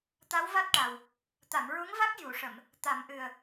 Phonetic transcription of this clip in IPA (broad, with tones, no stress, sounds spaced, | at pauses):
t̪ a˧˥ w v a˦˥ t̚ ʈ a˨˩ w | t̪ a˨˩˨ m ɹ u˧˥ ŋ v a˦˥ k̚ j u˨˩˨ ʂ ə˨˩˨ m | t̪ a˨˩˦ m ʔ ɨ˨˩ ə̯